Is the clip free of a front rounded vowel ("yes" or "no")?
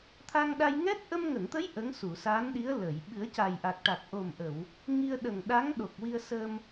yes